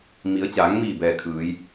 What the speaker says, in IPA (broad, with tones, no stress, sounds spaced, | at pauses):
m i˩˧ ə̯ t͡ɕ aː˩˧ ŋ m iː˧˩ b ɛː˧˩ kʰ ɯː˩˧ j